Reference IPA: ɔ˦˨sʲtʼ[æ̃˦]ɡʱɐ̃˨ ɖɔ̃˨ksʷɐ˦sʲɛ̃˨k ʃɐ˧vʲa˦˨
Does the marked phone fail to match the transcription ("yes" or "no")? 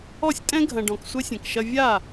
yes